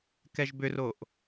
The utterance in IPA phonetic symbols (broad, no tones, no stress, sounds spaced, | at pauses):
k ɛ ʒ b ʏ r o ʔ